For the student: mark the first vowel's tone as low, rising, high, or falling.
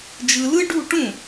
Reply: low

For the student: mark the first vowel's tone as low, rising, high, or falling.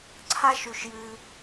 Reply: high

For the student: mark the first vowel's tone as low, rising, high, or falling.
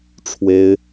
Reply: high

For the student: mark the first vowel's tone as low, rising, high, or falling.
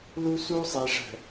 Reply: high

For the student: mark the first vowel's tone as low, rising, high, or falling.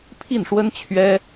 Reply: falling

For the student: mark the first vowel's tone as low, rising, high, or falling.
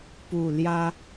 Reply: low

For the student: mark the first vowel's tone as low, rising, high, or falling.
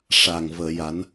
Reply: low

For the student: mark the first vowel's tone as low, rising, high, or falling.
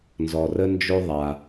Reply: low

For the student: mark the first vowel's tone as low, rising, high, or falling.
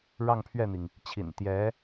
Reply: falling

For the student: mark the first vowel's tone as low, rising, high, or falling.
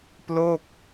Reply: falling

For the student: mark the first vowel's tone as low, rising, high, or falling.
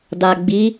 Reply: low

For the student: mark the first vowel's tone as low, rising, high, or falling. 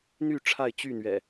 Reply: falling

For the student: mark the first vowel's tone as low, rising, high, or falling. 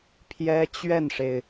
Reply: high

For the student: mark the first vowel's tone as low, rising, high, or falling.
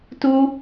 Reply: high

